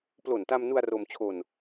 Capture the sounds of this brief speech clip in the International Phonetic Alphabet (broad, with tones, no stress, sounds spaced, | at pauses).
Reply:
p l o˨˩ n t a˧ m n u˧ a̯ r o˧ m t͡ɕʰ o˧ n